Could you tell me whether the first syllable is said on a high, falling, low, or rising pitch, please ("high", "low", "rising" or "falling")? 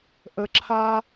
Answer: low